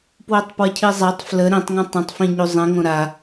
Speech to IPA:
pwotˤpwəcʰizˤatˤ flə ɾĩtˤŋə̃ tˤə̃tˤ fĩɲuzˤĩ ŋõɾa

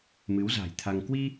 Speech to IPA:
mɨ˨˦wza̤˨˩jt̪ʰa˧ŋ kwi˧

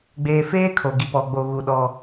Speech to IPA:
ɡ͡beː˨feː˦ kʰo˨ɡi˨pɔ˨ ɡ͡bo˨ɣu˨ ɗɔ˦

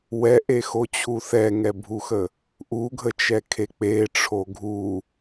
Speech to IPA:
wɛʔexot͡ɕʰu θɛŋɛbʱuxə | ʔuɡʱət͡ʃɛkʰe k͡peʈ͡ʂʰo ɡʱu

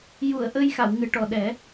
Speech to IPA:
ju˨˩˨ə̯ ʔə˧j xa˨˩˨wŋɨ˨˩˨ʈɔ˨˩ɗɛ˨˩˦

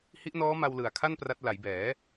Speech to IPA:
hi˦˥ʔnɔː˦˥ma˧w lɯ˨˩a̯kʰa˥˩n pra˦˥t̚ la˩˦jbɛː˩˦

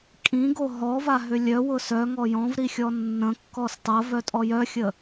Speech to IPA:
kʼĩɡo ɦɔvaɦʏ lʲœwʊ sœŋɔ jɔ̃vɾixʲɔ nːə̃kːɔs tˤɐvœtʼɔ jœxʲə

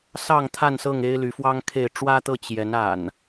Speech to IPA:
sɑ˥˨ŋt̪ʰa˥˨nsɤ˥˨ŋ e˦ɪ̯ly˨˦fwɑ˦ŋkʰe˥˨ɪ̯ ʈ͡ʂwä˦t̪ɤ˥˨ t͡ɕjɛ˨˦n a̰˨˩n

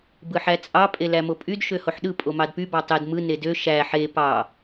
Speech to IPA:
bɯħæt͡sʼɑ pʼelæmopʼyd ʃøhoħɗɯ pʼomɑdpy bɑtˤed mɯ nedø ʃæ ħe pɑ

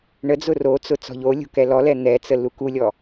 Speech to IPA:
ɳəd͡zʊ rot͡sʊ t͡sɔ̤ʎolʲo̤ kɛlɔlɛ n̪ɛt͡sə lukulʲɔ

